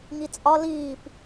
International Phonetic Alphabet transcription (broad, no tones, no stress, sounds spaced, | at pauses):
ŋ i t͡sʼ ɒ l iː p